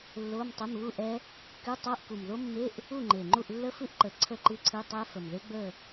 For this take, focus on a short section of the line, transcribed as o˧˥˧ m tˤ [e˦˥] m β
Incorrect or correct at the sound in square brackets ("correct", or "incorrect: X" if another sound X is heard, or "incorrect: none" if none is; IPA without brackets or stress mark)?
incorrect: e˧˥˧